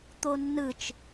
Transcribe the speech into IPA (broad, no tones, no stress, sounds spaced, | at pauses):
t̪ o nː ɯ t͡ʃ